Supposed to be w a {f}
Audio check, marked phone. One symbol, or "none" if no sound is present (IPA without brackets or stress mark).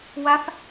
f